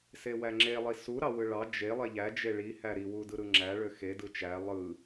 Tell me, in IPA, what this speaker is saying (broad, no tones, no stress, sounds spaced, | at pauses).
s e w æ ŋ͡ǁ e lˠ i s u ɾ ɑ w ɯ ɭ ɑ d͡ʒ e lˠ e ʎ æ d͡ʒ e ɭ i h æ ɾ i w u d ɯ ɾ ɯ ŋ͡ǁ æ ɭ ø x e d ɯ t͡ʃ æ lˠ ɯ